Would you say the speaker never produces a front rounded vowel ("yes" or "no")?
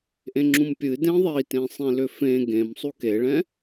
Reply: no